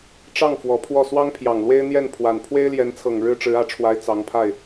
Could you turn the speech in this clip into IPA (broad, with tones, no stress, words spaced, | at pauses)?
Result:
ʈ͡ʂɑ˥˩ŋ fwɔ˧˥pʰwɔ˥˩ swɑ˥ŋ pʰjɑ˨˩ŋlwe˥ɪ̯n̪jɛ˥˩n pʰwa˨˩n pʰwe˥ɪ̯ljɛ˧˥nt͡sʰɤ˨˩ŋ ɻɻ̩˥ʈ͡ʂɻ̩˧˥ä˨˩ʈ͡ʂʰwa˧˥ɪ̯ t͡sɑ˧˥ŋpʰa˥˩ɪ̯